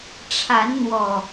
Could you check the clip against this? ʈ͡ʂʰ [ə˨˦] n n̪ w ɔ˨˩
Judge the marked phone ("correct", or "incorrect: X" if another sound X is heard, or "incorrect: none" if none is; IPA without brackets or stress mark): incorrect: a˨˦